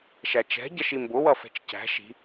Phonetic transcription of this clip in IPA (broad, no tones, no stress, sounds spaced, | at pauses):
ʃ æ t͡ʃ ɛ̤ ɟ ʌ ʃ i m b ʊ w ʌ f ɛ̤ t͡ʃ c æ̤ ʃ i̤